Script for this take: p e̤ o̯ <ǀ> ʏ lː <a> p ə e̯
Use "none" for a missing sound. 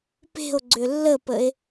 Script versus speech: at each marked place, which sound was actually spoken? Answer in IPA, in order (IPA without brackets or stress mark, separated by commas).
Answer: ɡ͡ǀ, ə